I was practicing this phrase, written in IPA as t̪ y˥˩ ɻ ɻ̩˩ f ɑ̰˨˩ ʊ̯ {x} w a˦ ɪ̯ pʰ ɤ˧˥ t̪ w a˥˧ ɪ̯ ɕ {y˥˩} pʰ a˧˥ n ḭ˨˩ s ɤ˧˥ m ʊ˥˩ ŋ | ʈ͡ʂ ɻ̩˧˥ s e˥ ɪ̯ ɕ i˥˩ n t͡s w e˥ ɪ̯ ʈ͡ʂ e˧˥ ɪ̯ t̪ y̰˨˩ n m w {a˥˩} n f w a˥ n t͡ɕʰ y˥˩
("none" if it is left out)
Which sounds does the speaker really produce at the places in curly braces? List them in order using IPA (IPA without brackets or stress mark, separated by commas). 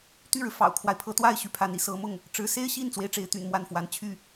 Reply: kʰ, y˥˩, a˥˩